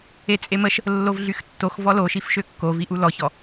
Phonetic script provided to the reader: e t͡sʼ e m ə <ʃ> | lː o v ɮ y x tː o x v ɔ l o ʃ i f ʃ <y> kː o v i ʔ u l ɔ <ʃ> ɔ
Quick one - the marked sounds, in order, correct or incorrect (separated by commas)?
correct, incorrect, incorrect